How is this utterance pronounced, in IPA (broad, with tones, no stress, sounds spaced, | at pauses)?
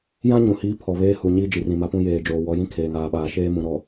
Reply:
j ã˦ ɲ ũ˨ h iː˦ pʰ ɔ˨ β eː˦ h u˨ ɲ i˦ d͡ʒ i˨ r ĩ˨ m a˦ p ũ˦ j eː˨ d͡ʒ oː˨ w ɔ˨˦ j ĩ˦ kʰ eː˨ ŋ aː˨ ɓ aː˨ ʃ eː˦ m ũ˨ ɾ ɔ˨